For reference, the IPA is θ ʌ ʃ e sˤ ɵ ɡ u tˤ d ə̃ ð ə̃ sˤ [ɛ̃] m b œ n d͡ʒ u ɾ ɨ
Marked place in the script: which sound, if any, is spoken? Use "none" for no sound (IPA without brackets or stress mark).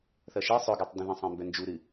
ẽ